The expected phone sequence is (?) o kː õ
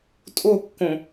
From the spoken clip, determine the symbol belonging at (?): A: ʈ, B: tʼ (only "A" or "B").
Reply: B